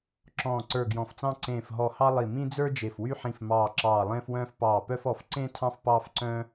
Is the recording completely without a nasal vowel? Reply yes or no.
no